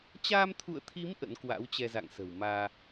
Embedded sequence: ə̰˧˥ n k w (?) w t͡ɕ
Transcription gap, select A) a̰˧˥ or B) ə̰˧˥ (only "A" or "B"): A